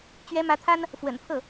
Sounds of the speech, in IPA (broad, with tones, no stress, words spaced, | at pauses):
t͡ɕɥɛ˧˥mä˧˥t̪ʰa˥n | fwə̰˨˩npʰɤ˥˩